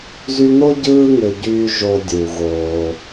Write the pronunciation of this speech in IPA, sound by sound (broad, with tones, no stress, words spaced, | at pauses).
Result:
zy˦n̪o˥ ɟɯː˦ŋø˩ɟyː˨ ʒo˨dʲu˩ ɣoː˩